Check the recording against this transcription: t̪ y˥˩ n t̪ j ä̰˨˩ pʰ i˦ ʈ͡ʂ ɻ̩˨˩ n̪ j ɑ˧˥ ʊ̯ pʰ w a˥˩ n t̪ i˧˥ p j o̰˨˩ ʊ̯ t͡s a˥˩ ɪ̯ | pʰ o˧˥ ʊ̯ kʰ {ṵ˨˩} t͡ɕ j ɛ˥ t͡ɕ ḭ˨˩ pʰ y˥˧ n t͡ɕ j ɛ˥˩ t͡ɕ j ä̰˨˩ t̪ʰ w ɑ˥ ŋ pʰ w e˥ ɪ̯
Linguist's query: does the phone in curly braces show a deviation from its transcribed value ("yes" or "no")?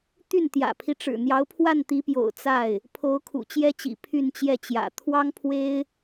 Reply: no